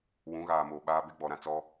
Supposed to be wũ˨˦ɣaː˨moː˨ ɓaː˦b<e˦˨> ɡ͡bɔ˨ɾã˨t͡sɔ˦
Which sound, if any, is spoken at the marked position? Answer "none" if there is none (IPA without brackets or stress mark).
e˦